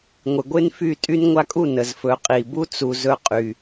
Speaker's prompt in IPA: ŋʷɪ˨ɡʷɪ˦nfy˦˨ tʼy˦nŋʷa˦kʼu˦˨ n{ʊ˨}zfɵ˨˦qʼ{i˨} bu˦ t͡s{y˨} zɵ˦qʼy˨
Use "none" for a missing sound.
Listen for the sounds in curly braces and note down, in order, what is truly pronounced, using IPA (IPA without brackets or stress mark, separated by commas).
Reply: ə˨, i˨, u˨